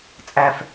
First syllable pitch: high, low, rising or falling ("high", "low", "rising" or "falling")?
low